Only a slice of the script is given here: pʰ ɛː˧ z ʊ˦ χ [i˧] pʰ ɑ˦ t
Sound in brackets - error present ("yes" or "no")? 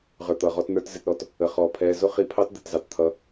no